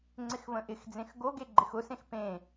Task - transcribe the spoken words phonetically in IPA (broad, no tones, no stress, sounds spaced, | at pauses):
ŋ͡ǀ ɪ x v ə̃ ʔ ɪ x d͡z ẽ x ɡ o ɡ e ɡ͡ǃ ɪ x ʊ s ẽ x p ẽ